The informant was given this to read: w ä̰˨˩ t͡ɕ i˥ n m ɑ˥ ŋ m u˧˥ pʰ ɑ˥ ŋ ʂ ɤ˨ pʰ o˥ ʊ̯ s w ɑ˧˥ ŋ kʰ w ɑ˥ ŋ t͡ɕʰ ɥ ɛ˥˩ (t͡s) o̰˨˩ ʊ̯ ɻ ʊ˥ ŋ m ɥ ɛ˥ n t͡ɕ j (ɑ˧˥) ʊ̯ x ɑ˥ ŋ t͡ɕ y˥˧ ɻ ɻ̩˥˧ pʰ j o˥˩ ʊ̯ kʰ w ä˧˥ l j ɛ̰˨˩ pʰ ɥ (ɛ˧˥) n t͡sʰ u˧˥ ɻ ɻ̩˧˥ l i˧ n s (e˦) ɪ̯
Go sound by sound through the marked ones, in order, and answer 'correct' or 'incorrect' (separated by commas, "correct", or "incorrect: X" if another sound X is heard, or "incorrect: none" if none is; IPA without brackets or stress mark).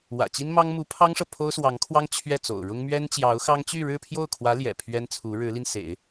correct, correct, incorrect: ɛ˥, incorrect: ḛ˨˩˦